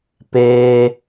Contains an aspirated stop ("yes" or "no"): no